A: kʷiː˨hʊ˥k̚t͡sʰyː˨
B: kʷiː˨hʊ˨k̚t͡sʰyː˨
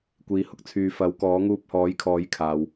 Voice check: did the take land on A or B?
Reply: A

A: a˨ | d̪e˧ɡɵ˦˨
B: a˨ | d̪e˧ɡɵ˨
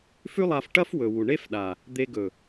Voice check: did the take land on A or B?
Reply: B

